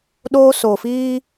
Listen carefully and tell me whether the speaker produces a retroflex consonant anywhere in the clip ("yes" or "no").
no